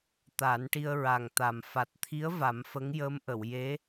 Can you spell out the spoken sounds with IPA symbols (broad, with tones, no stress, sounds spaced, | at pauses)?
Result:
t̪ a˨˩˦ n ʈ i˧ ə̯ ɹ a˨˩ ŋ t̪ a˨˩ m f a˨˩ t̚ t̪ʰ i˧˥ ə̯ v a˨˩˦ m f ə˧˥ ŋ j əː˧˥ m ʔ ə˨˩˨ w j e˧˥